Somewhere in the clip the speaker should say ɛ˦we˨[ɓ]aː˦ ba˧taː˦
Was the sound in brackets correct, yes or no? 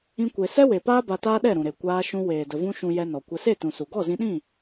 no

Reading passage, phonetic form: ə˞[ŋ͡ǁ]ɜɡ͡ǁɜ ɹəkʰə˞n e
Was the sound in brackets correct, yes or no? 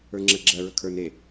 yes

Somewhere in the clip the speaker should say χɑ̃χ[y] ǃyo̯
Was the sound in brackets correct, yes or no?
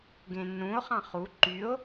no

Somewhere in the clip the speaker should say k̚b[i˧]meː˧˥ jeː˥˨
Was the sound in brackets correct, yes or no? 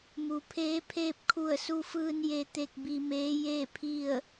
yes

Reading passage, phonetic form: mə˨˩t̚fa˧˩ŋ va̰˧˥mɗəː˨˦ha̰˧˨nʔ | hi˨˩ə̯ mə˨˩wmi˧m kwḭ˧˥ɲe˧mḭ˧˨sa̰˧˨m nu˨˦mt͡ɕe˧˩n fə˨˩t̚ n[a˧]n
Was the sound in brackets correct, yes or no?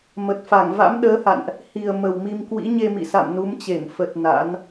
no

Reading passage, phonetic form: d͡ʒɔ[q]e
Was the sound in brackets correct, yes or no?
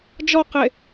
yes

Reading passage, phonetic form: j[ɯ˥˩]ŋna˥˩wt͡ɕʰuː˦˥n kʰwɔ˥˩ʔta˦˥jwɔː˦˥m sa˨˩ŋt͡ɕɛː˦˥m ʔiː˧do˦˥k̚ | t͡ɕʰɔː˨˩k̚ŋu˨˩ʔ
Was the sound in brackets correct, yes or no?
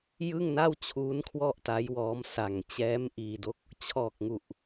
yes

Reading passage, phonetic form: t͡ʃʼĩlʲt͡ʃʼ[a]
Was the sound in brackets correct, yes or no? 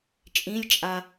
yes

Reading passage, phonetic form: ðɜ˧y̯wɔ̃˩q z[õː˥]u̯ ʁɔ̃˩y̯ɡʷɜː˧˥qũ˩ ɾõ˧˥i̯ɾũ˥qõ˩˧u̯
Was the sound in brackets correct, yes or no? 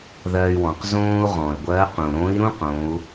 yes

